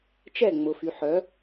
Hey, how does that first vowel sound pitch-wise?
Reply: falling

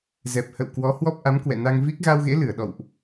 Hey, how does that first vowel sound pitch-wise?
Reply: low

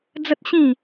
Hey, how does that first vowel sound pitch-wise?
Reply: high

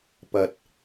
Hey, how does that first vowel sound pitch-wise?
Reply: low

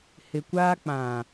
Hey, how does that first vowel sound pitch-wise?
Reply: low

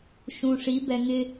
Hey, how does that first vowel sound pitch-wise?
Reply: low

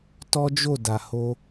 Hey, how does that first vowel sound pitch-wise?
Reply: high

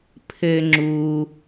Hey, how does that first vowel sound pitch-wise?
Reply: high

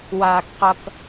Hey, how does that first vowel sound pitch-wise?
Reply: low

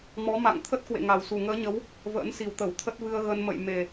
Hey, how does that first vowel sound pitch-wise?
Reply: rising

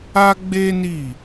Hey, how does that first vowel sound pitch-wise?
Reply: high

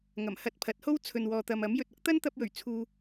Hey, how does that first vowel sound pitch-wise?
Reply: low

